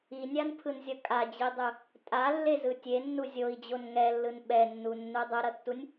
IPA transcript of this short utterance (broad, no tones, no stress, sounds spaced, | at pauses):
i nʲ a n pʰ ɯ n zʲ ʌ kʼ a d͡ʑ i dˤ ɯ | tʼ a lː e z ɯ tʲ e nː u zʲ o i̯ d͡ʑ o n ŋ ɛ lː ɯ n ɓ ɛ nː u nː u dˤ ɯ ɾ ʌ tː u nʲ